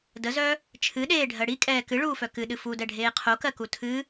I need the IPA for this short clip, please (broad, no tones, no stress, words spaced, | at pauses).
dəzœ | t͡ʃʰɨɗeːɖʱɜ ɽikʼɛː kɨɭuːfœ kɨɗɨ fudɛɖʱeː qʰokɜku tʰɨ